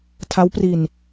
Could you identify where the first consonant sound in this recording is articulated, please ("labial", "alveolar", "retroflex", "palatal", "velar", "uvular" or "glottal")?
alveolar